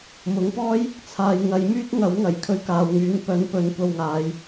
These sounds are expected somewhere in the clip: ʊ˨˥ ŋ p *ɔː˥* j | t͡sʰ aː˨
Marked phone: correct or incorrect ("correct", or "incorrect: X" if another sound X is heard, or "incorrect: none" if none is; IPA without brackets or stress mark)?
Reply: correct